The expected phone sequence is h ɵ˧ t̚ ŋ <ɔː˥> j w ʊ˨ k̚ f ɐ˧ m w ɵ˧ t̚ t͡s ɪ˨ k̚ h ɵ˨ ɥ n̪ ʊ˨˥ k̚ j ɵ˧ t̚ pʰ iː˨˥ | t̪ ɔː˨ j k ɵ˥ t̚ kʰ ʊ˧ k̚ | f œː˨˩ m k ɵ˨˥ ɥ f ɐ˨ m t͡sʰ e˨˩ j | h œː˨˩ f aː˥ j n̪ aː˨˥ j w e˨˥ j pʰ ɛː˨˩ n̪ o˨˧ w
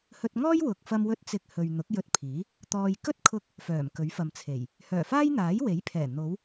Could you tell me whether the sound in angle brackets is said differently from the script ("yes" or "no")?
no